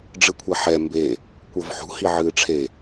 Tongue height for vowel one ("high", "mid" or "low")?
high